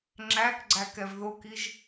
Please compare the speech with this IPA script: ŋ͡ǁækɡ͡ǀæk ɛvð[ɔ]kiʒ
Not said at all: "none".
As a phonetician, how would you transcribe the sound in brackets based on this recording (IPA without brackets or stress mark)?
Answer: o